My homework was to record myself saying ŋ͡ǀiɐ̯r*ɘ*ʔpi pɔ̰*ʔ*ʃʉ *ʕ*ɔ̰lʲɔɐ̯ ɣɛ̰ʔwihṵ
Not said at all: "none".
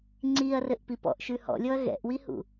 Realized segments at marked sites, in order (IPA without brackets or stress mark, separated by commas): ɘ, ʔ, h